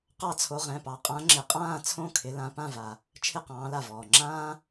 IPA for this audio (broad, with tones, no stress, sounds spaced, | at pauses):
q ɑ˦ t͡sʰ o˨˦ ʁ ɛ̃˩˧˩ p ɑ˨˦ qʼ ã˨˦ ŋ͡ǁ ɪ˩˧˩ qʼ ãː˥˨ t͡sʰ õ˥˨ kʰ ɪ˨˦ l ã˨˦ p ã˥˨ v a˩ | t͡ʃʰ ɪ˥˨ q ɑ̃ː˨˦ l a˧˩ v ɔː˩ ŋ͡ǁ ãː˦